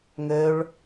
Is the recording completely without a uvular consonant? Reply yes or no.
yes